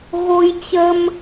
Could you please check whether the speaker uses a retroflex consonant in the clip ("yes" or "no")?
no